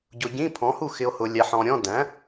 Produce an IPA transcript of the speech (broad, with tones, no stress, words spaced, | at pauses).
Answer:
ɟʊ˨ɟĩ˧˥˧pʰɔ̃˩˥hu˥˩ xɪ˨o̯ hʊ˨ lʲæ˨ħɔ̃˨ɾʲɔ̃˧˥˧ dæ̃˩˥